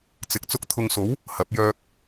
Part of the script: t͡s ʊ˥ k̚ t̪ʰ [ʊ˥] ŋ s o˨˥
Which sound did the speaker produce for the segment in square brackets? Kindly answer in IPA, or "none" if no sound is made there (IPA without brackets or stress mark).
ʊ˧